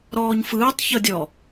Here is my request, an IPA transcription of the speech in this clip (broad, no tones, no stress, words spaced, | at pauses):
ɾɔːɲfɯːtˤ çɤdʲɔ